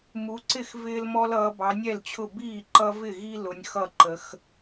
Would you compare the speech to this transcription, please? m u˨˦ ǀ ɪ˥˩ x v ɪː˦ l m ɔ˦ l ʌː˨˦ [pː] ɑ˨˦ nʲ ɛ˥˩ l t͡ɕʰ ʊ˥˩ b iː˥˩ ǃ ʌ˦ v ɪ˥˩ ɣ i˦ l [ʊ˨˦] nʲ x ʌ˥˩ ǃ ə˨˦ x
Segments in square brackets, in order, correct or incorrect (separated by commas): incorrect, correct